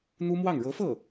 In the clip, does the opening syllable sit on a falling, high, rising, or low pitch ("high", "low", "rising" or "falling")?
high